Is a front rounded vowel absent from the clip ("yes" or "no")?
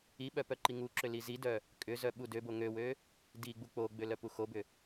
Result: no